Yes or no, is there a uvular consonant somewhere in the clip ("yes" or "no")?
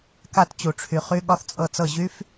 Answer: yes